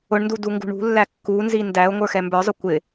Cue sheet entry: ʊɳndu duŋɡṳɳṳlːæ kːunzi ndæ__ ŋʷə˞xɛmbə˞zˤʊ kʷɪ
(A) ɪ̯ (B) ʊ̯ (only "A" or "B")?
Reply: B